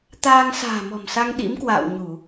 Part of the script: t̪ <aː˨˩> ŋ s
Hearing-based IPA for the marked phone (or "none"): aː˧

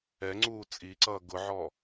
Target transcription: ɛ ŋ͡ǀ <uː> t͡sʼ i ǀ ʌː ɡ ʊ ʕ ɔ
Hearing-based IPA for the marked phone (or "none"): uː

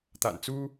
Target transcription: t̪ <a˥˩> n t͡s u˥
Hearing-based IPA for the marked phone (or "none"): a̰˨˩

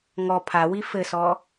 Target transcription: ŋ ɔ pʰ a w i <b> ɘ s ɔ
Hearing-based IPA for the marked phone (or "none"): f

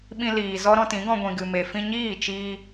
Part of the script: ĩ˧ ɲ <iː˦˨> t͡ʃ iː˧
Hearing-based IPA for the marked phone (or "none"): iː˦˨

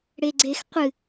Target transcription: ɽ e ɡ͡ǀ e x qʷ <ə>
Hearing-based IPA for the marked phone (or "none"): ɨ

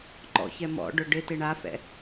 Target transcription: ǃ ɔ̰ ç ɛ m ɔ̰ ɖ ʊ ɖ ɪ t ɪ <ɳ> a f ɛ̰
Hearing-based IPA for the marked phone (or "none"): ɳ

